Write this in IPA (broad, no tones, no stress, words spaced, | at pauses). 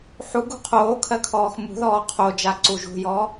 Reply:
ħuɡṳ qʰoːkʰɜ kʰɔːxmṳðɔː qʰo d͡ʒaǀuʒṳjɔ